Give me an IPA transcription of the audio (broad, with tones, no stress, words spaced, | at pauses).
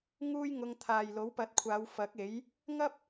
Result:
ŋuː˥jŋʊ˧ŋ t̪ʰaː˨jlo˨˥wpɐ˨˥t̚kʷʰaː˨˧w fɐ˨˥k̚e˨˥j | ŋɐ˥p̚